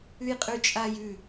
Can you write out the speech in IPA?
ʉ j qʼ ʉ t͡ʃʼ a j ʉ

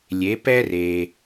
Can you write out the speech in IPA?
lʲ e˩˧ p ɛ˧ r e˩

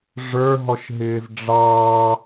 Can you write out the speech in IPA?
ʐ ə˞ ɦ ɔ ʃ ɦ ɪː z ɖ͡ʐ ɑ

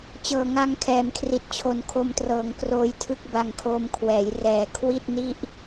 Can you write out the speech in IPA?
t͡ɕ ɤː˨˩ ŋ a˧ ŋ kʰ ɛː˨˩ m kʰ r i˨˩ t̚ t͡ɕʰ o˨˩ n kʰ o˧ m t r ɤː˩˦ ŋ k r oː˦˥ j tʰ ɯ˥˩ k̚ b a˧ ŋ kʰ oː˧ m kʰ w ɛː˩˦ j r ɛː˨˩ kʰ w i˥˩ t̚ n i˥˩ ʔ

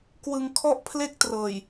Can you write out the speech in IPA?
k w ɯ˧ ŋ kʰ ɔ˥˩ ʔ pʰ l e˥˩ k̚ t r ɤː˨˩ j

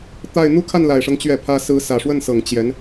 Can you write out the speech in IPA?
t̪ a˥˧ ɪ̯ n̪ u˥˧ kʰ a˥˩ n l a˨˩ ɪ̯ ʂ ɤ˦ ŋ t͡ɕ ɥ ɛ˥˩ pʰ ä˥ s ɹ̩˧˥ s ä˨˩ ʂ w ə˥˩ n s ɤ˨˩ ŋ t͡ɕ j ɛ˧˥ n

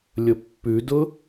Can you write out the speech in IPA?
lʲ ʊ pː ʉ d ʊ

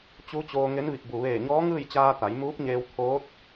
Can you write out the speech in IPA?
t͡ɕ u˧˥ t͡ɕ oː˧ ŋ e˧˥ n ʋ i˧˩ k̚ b u˩ ʋ eː˧˩ ɲ ɔː˧˥ ŋ ɯː˥˨ j t͡ɕ aː˧ t̪ a˩˧ j m uː˧˥ p̚ ɲ eː˧ w t̪ʰ oː˧˥ t̚

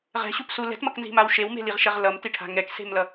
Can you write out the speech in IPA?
ʁ ɛ̤ ɕ u p s u l ɛ̤ t m ʌ k n z i̤ m a w ʃ e w m e̤ l i ʁ ʃ ɛ ʁ l ʌ m t i ʈʰ a̤ ŋ ɛ k s e̤ m l ʌ

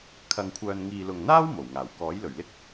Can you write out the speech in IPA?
kʰ ɐ˧ ŋ kʷʰ œː˧ n ŋ iː˧ l ʊ˨ ŋ n̪ aː˥ w m o˨˩ w ŋ aː˨˩ w k ɔː˨˥ j l ɵ˨˩ ɥ l ɪ˥ k̚

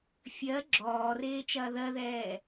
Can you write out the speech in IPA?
fʲ ɜ ɡ͡ǁ ɔː r eː t͡ʃ ɐː ð ɜ ð ɛː

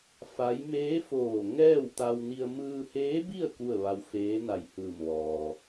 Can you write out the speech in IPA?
f a˧˥ j m eː˧˥ f oː˧˩ ŋ ɛː˥˨ w t̪ a˧ w n i˧ ə̯ m ɯː˧ h eː˧˥ b i˥˨ ə̯ k u˥˨ ə̯ ʋ a˧ w f eː˧˥ n a˧˩ j h ɯː˧˩ m ʋ ɔː˩

